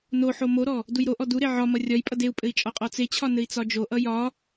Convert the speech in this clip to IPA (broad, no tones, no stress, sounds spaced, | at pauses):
n o ħ o m o ɾ ɔ | d u j ɾ o ʔ ɔ d u ɾ e ʕ ɒ m ʌ rʲ ɒ j pʼ ʌ d e u̯ pʼ ɘ i̯ t͡ʃʼ ɒ qʼ ɔ t͡s e t͡ɕʰ ɒ n ɘ i̯ t͡s ɒ d͡ʒ o ʔ ʌ j ɒ